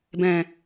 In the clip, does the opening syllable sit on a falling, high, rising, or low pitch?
low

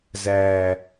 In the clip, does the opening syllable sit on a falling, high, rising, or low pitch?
low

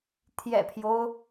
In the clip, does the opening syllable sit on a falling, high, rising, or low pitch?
low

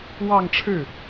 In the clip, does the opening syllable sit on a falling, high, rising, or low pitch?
falling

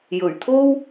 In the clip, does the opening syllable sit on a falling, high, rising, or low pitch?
low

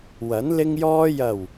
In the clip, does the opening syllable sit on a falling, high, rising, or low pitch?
rising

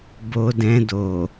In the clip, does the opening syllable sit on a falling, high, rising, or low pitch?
low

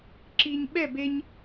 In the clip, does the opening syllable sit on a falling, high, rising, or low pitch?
low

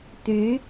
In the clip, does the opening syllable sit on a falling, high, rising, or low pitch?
rising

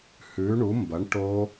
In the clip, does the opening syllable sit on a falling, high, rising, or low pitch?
rising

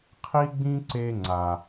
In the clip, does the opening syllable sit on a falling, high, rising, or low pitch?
high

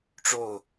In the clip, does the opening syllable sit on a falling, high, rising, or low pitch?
falling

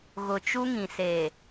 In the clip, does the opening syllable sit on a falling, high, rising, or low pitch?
low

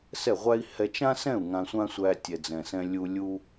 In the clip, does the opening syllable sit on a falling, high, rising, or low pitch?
falling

